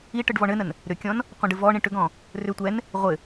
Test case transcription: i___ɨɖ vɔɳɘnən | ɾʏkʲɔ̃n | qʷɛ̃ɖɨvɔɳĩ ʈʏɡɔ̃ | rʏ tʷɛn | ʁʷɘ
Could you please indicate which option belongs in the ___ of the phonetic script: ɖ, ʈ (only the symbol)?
ʈ